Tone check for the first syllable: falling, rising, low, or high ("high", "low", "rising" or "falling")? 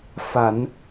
low